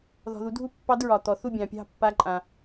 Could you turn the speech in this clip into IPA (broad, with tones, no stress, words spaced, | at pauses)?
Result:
ðɔ̤˩ðu˩˧dʱu˥˨ pːɑ˧˥dɹɒ˩ t̪ɔ˩ θu˥˨bʲɑ̃˩pʲɑ̤˥˨ pːa˧˥ǃʼã˩